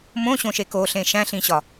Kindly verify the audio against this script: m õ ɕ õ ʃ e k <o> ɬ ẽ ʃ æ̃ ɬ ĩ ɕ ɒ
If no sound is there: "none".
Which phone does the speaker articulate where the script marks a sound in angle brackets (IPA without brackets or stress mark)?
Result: o